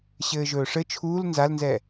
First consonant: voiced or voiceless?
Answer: voiceless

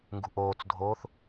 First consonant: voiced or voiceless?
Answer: voiced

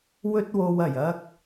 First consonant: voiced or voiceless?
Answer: voiced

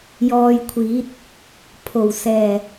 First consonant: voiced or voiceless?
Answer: voiced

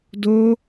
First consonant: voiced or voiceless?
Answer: voiced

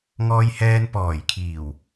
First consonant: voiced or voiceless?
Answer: voiced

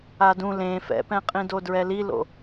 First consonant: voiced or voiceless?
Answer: voiced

